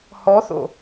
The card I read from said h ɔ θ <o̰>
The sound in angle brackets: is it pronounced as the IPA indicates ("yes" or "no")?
yes